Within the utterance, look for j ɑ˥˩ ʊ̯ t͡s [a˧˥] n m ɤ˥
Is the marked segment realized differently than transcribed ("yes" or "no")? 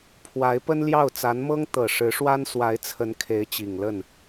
no